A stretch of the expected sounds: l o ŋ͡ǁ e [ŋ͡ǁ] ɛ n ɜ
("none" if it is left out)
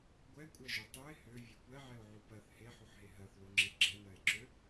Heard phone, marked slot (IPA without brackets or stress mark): ɡ͡ǁ